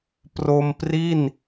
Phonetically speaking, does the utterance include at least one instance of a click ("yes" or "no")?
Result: no